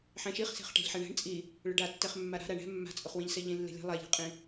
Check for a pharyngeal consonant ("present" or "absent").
present